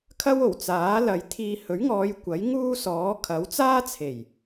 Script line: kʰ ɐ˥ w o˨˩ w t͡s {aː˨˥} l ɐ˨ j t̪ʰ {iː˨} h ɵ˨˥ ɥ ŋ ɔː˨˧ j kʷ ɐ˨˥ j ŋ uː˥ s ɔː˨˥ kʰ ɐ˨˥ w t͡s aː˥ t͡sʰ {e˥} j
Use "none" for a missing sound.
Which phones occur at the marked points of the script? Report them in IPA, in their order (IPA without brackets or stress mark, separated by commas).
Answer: aː˨˥, iː˨, e˨˩